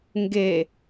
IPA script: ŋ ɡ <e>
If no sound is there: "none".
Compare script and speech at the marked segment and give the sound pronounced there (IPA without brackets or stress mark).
e